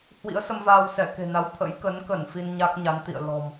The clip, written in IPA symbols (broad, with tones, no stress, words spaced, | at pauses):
hwḭ˧˥ə̯sə˧m vaː˧wsɛ˧˩ke̤˨˩na˨˦w t̪ʰə̰˧˥jkə˨˦nkə˧˩n fi˧nɲa˦˥k̚ɲa˨˦n t̪ḭ˧˨ə̯ lɔ̤˨˩m